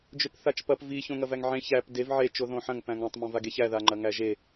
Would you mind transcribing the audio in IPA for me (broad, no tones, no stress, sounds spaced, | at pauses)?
d͡ʒ ø p θ a t͡ʃ p ɐ p v i ç õ ŋ ɐ v æ ŋ ʕ ẽ ç æ p d e v ʕ e t͡ʃ o ð õ ħ ɐ̃ ŋ p æ̃ ŋ ã tˤ m õ v a ɡ e ç æ ð a ŋ͡ǃ ɐ ŋ æ ʒ e